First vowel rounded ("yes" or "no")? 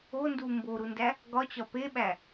yes